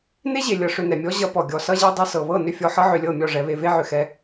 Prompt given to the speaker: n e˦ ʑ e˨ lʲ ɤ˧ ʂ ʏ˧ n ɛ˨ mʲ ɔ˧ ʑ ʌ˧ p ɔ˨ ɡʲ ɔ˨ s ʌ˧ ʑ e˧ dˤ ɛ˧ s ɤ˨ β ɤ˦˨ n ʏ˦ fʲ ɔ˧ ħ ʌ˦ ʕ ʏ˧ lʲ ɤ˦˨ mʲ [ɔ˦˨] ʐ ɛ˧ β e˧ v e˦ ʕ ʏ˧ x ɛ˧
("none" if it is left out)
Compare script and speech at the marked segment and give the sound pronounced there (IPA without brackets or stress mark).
ɔ˦˨